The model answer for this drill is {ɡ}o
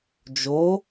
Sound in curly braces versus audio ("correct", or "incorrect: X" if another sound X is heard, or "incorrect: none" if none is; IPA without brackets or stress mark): incorrect: d͡ʒ